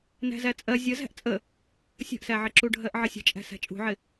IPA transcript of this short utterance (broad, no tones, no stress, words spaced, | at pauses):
næ̤zæt͡sʼɜ zʲəzæ̤ʔ t͡sʼə | sʲə̤ʔsæʕɪǁu ɖʱɜʔʕəsʲə̤t͡ʃʼæ̤ sæ̤t͡ʃʼṳʕɪ